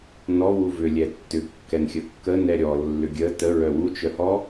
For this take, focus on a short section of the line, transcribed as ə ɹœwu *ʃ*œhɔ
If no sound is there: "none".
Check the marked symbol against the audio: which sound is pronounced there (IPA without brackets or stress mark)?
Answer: t͡ʃ